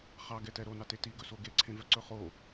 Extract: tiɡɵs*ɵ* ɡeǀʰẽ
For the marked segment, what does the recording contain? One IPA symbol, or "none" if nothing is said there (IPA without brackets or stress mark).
o